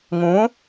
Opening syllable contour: rising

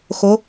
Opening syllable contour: rising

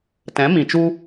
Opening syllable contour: rising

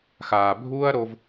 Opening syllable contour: low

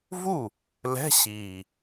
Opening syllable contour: falling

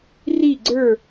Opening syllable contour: falling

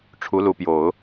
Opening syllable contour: rising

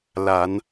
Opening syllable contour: rising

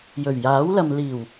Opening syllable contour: low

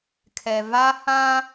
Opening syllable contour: low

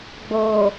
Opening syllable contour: low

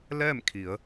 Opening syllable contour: falling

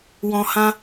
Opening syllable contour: low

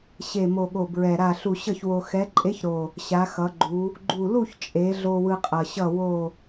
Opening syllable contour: low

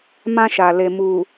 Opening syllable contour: high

